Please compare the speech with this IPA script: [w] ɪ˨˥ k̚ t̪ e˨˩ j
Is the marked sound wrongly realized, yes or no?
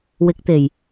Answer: no